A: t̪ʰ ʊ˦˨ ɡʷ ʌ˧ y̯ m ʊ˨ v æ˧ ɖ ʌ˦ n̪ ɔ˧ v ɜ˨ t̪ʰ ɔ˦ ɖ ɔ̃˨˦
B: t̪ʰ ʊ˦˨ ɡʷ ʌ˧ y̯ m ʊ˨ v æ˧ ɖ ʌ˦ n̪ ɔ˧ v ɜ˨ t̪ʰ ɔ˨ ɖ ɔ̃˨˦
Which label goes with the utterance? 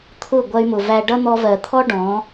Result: A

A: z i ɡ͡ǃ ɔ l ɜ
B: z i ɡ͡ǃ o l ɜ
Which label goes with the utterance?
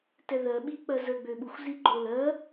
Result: B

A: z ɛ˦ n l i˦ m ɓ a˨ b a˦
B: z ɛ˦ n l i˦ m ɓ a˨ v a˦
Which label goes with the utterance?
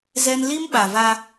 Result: B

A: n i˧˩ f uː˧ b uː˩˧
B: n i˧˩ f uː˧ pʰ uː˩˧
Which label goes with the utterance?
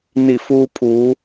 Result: B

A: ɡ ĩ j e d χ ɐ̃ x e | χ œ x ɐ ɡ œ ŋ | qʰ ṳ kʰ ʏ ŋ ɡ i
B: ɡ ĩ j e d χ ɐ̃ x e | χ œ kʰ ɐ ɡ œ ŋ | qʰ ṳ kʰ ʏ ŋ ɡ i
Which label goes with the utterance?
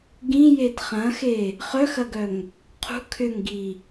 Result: A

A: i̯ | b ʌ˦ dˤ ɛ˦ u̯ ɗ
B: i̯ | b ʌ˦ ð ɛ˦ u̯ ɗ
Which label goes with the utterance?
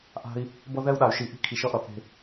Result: B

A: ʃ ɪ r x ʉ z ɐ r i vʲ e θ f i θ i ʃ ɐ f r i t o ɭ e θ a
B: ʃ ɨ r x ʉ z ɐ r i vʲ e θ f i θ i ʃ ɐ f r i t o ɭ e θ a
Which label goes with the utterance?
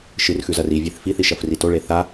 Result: B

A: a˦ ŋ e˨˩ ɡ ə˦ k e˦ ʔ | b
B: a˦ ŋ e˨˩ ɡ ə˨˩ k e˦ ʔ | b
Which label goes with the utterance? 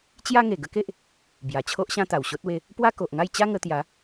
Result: A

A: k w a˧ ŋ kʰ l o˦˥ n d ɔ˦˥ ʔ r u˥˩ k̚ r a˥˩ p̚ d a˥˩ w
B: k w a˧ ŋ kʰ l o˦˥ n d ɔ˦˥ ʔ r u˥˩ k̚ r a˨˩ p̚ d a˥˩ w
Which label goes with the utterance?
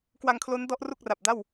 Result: B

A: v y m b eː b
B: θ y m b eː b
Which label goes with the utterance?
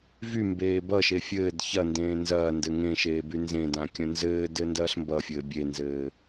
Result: A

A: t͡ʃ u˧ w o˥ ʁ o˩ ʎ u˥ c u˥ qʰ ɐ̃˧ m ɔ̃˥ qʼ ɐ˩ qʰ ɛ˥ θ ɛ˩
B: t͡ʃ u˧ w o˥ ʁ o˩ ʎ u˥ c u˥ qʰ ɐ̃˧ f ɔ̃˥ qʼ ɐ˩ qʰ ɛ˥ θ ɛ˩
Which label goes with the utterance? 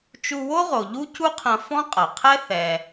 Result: B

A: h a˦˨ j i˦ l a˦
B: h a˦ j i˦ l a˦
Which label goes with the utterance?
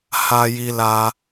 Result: B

